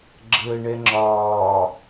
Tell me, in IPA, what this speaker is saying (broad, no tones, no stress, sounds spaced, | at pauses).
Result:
ɡ͡ǁ əː ɳ ɛ ŋ͡ǁ ɒː